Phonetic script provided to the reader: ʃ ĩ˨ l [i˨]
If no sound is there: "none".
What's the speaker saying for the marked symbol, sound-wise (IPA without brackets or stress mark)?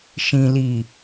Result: i˨